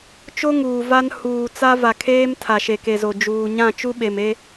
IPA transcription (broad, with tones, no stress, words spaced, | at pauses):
t͡ʃo˦ŋuː˨ va˦n huː˨ t͡sa˦va˨kʰeː˦m tʰa˨ʃe˨ke˨zo˨ d͡ʒuː˨ɲã˦˨ t͡ʃu˦ɓe˨me˦